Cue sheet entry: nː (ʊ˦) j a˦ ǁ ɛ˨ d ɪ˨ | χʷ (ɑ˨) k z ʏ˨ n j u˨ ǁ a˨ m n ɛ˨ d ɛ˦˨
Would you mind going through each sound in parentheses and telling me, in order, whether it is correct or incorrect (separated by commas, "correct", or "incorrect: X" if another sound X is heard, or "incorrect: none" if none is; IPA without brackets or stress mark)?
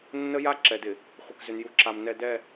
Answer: incorrect: ə˦, incorrect: ə˨